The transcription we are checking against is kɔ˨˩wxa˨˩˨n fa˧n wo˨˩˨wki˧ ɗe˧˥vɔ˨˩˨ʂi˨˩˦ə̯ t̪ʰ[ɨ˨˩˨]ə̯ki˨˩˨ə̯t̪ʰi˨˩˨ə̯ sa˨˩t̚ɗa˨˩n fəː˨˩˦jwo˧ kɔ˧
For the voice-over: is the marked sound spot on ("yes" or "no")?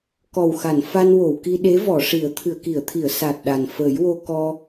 yes